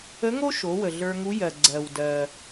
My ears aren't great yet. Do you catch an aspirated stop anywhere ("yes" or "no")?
no